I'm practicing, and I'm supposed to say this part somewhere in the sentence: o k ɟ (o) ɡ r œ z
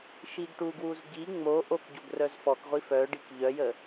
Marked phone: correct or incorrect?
correct